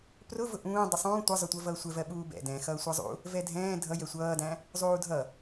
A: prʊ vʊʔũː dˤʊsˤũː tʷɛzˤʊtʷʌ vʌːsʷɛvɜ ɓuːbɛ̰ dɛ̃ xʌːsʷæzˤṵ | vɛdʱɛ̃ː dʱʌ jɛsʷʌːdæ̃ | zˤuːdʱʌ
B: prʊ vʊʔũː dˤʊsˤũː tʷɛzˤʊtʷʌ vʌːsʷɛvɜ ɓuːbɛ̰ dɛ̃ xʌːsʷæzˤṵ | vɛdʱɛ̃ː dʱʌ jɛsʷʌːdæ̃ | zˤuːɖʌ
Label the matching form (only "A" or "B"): A